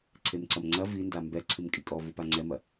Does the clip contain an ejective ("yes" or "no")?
yes